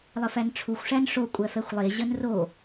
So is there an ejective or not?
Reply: yes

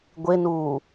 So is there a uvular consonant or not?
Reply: no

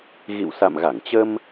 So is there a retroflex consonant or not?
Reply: no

